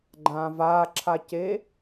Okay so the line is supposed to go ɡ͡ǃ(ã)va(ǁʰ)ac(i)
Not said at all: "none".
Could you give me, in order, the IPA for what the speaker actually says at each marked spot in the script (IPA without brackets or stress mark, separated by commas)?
ã, ǁʰ, e